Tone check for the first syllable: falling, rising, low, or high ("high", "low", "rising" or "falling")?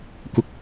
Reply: low